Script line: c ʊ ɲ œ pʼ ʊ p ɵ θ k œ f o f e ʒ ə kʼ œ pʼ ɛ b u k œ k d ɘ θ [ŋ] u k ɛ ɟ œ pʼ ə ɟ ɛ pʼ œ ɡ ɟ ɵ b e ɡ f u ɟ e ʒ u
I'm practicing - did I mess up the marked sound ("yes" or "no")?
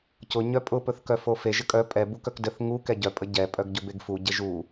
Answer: no